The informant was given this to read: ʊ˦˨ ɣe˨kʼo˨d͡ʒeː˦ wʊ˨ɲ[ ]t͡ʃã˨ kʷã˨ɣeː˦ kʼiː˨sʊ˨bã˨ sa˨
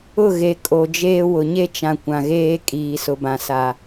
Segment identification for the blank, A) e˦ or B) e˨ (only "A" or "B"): A